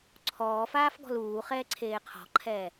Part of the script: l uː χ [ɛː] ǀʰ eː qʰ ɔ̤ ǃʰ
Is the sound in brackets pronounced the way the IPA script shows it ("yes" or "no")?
yes